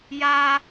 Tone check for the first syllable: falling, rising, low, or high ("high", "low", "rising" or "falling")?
high